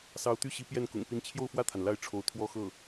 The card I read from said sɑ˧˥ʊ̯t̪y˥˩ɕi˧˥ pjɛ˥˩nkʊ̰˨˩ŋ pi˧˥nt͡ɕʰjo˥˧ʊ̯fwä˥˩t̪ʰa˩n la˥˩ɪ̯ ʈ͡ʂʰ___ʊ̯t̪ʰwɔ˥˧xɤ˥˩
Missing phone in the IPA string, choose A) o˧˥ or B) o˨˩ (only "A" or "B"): A